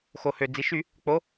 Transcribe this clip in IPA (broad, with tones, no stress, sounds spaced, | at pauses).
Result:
x o˩ h ø˩ d͡z i˩ ʃ y˧˩˧ | k͡p o˩˧